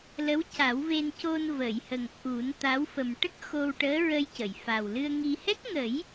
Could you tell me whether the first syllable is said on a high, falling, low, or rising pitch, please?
rising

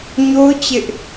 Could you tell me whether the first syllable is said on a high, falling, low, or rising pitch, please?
high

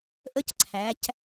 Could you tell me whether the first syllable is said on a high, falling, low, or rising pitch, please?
high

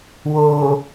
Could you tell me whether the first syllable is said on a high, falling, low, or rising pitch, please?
low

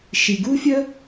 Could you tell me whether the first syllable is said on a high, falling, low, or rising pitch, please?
low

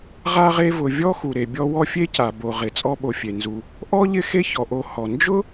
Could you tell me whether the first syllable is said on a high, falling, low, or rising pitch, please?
high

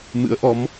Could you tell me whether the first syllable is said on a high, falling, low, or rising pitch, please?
rising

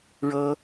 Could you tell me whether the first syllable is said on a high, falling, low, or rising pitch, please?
high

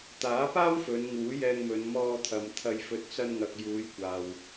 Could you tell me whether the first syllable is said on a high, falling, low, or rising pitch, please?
rising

